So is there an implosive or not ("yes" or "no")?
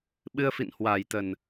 yes